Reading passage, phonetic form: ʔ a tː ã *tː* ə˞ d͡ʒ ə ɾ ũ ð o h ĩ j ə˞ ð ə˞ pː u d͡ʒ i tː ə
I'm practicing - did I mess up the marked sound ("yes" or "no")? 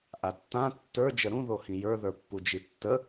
no